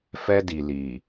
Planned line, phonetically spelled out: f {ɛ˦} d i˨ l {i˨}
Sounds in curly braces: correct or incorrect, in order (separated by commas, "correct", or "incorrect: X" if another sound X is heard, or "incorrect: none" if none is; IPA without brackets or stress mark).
correct, correct